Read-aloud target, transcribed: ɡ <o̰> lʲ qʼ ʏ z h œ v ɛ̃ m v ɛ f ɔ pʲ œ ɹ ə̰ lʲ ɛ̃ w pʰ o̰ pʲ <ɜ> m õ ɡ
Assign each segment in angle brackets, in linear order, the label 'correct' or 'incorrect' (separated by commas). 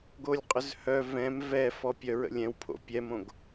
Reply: incorrect, incorrect